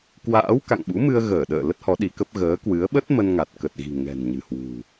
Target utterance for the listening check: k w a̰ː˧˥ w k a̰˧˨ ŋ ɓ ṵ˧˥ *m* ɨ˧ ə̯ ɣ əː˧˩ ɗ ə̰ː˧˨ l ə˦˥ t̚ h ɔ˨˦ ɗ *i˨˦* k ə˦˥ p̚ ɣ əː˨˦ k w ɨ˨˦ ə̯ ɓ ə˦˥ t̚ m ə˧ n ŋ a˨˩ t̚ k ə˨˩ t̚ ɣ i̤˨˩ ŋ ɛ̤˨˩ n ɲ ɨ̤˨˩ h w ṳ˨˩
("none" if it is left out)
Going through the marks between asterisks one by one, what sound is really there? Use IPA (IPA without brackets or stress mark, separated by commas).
m, i˨˦